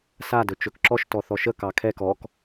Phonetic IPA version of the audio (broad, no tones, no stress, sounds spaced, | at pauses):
s a d ɵ t͡ʃ ɵ k ǁ ɔ ʃ t ɔ θ ɔ ʃ ə k ɑ kʰ ɛ k ɔ k